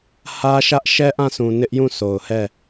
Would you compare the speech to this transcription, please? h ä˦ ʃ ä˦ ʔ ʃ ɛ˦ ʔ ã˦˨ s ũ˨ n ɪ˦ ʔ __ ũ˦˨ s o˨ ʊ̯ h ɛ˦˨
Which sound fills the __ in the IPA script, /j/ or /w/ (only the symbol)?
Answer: j